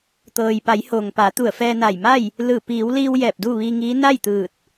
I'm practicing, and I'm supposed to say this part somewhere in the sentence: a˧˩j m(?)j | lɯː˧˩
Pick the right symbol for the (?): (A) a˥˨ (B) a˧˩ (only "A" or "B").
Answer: A